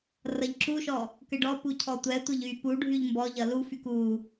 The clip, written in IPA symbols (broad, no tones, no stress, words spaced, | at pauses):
rʌʎǁuʃɔ | kɘɖɔpu cʰɔtʷɛtʷɘʎ y puɖʱyʎ mbɔʎʌ lufyk u